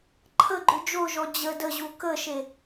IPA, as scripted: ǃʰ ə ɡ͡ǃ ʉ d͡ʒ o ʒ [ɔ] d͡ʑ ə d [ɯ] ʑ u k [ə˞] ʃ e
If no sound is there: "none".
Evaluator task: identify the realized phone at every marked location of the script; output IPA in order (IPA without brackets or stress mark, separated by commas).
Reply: ɔ, ə, ə